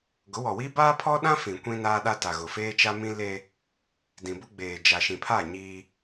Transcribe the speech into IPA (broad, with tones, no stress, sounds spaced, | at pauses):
ɡ ʊ˨˦ w ɔ˨ w iː˦ b aː˦ pʰ ɔ˦ ɗ ã˦ f ĩ˨ kʷ ĩ˦ n aː˦ ɗ a˦ t a˨ ɣ ʊ˨ f eː˦ t͡ʃ a˦ m ĩ˦ l e˦ | d ĩ˨ b ʊ˦ ɡ͡b eː˨ d͡ʒ a˨ ʃ ĩ˨ pʰ a˦˨ ɲ iː˦